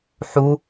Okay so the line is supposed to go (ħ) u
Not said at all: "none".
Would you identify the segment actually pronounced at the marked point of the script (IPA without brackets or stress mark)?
ħ